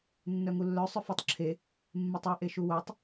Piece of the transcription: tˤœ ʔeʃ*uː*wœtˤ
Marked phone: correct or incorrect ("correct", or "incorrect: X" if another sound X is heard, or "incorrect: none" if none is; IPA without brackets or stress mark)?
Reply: incorrect: u